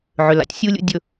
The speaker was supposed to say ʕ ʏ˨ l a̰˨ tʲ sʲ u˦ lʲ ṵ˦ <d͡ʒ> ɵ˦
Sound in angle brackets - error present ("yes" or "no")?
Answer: yes